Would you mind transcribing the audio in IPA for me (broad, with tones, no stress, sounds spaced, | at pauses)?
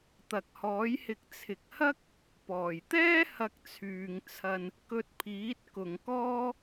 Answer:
t̪ ɐ˨ k̚ h ɔː˨˥ j h ɪ˧ k̚ t͡sʰ ɪ˨ k̚ h ɐ˥ k̚ | p ɔː˨˩ j t̪ ɛː˥ h ɐ˧ k̚ t͡sʰ yː˨ ŋ t͡sʰ ɐ˧ n | k ɵ˧ t̚ pʰ iː˨˥ t̚ k ʊ˨ ŋ k ɔː˥